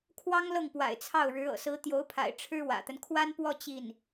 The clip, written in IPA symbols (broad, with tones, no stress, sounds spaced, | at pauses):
kʰ w ɑ˥ ŋ l ɤ˥˩ ŋ p w a̰˨˩ ɪ̯ t͡sʰ ɑ˥˩ ʊ̯ ɻ ɻ̩˧˥ ɤ̰˨˩ s ɹ̩˧˥ t̪ j o˧˥ ʊ̯ pʰ a̰˨˩ ɪ̯ ʈ͡ʂʰ ɻ̩˥ w ä̰˨˩ t̪ ə˦ n kʰ w a˥ n p w ɔ˥˧ t͡ɕ i˥˩ n